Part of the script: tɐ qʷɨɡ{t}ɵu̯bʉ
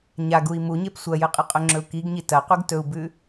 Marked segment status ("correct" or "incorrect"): correct